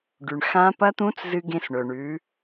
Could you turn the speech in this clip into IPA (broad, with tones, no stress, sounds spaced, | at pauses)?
ɖ ʉ˩ ɳ x ã˧˥ p ɐ˧˥ t̪ ũ˧˥ t͡s z ɨ˧ ɡ ẽ˧ s ɳ ɵ˩ ɳ ʉ˩˧